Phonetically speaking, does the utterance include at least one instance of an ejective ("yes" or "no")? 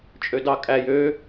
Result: yes